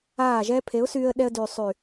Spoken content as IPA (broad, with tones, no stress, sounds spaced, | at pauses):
aː˦˨ ʒ ɛː˦ pʰ e˨˦ ʊ̯ s yː˧ ə̯ ɗ ɛ˧ ə̯ d yː˨ sˤ y˨